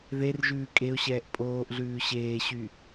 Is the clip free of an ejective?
no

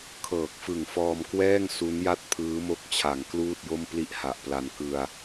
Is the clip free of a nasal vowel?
yes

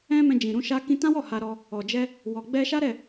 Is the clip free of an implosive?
yes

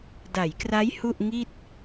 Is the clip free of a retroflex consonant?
yes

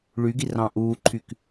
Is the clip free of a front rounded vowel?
no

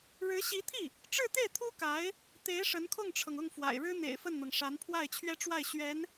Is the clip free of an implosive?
yes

